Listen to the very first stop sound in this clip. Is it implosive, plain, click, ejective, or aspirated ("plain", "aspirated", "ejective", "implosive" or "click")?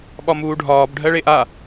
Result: implosive